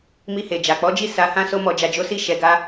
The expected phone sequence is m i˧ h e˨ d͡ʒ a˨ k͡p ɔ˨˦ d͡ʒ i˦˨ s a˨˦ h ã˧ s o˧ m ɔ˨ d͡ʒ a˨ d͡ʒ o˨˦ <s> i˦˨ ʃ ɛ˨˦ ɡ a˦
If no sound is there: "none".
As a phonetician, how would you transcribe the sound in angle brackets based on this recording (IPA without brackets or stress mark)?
s